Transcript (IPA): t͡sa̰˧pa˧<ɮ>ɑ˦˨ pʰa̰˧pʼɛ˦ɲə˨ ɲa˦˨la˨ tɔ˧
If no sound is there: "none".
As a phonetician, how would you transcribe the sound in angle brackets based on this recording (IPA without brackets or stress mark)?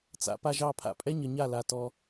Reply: ʒ